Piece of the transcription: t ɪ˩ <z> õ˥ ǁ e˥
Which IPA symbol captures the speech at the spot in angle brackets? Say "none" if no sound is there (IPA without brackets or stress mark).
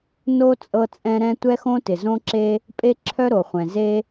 z